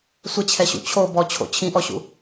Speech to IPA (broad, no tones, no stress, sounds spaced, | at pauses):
sʷ ɘ t͡ɕʰ ɛ ɕ ṵ t͡ɕʰ o b ɔ t͡ɕʰ o̰ t͡ɕʰ ĩ ʔ ɔ ɕ ṵ